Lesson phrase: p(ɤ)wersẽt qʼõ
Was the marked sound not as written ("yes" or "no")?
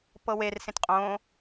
no